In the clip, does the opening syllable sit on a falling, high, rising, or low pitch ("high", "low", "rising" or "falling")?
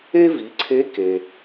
high